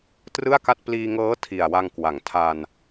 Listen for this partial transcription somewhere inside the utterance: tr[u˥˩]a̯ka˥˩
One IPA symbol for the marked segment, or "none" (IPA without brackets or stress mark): ɯ˥˩